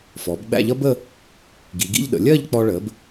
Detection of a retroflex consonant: present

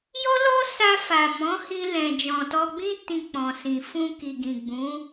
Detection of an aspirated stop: absent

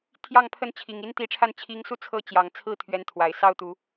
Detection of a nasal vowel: absent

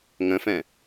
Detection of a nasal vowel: present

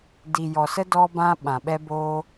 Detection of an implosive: present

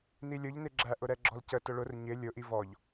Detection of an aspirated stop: absent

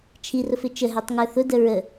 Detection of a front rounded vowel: absent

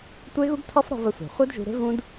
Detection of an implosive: absent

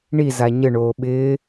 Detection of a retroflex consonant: present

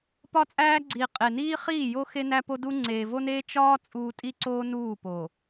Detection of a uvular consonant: present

